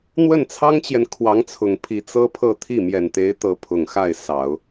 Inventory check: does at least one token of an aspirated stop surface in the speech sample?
yes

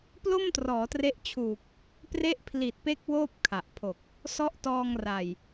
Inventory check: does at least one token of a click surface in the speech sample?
no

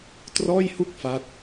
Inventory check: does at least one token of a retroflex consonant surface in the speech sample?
no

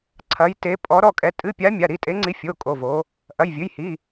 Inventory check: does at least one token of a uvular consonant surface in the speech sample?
no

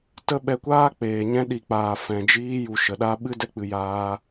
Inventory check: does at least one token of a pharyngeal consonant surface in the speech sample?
no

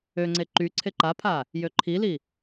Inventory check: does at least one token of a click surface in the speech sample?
yes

